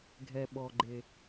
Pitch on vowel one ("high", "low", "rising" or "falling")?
low